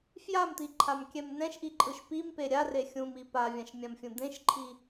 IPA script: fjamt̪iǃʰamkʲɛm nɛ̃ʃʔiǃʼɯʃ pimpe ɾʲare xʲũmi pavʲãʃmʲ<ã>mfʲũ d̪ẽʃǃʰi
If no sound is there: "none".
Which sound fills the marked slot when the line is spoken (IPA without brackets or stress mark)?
ã